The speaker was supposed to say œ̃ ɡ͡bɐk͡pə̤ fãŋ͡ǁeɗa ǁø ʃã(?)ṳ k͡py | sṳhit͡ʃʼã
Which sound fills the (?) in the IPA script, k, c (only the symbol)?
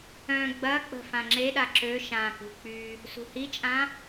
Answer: k